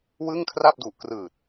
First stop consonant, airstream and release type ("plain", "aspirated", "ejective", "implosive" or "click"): aspirated